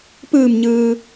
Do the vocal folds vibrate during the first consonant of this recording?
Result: no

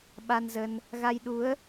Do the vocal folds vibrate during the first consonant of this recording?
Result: yes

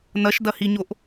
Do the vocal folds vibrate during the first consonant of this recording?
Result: yes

